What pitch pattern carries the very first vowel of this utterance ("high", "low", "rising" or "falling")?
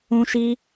high